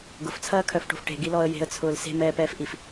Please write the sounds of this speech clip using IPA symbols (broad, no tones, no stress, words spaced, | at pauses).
ɡʊft͡sʰɐːkʰœfʈo̤f ʈe̤ɡilɔə̯ je̤ə̯t͡sʰʊːl se̤mɛːpɛːfʔif